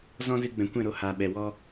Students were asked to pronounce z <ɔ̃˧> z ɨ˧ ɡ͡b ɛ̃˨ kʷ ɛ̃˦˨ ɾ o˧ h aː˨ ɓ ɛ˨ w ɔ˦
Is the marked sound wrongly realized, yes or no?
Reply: yes